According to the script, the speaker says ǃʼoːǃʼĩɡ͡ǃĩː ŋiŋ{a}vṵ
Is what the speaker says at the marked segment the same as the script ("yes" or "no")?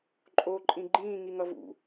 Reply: no